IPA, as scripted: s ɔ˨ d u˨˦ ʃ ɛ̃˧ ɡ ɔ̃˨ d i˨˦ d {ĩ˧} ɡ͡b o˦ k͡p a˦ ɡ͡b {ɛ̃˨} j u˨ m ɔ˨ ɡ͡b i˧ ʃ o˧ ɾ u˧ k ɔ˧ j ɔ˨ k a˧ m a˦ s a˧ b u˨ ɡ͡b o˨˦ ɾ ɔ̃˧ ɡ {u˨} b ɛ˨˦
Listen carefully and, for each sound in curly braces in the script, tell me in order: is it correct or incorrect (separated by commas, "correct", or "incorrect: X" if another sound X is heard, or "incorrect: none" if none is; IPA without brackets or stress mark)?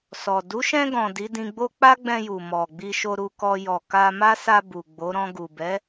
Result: correct, incorrect: ɛ̃˧, correct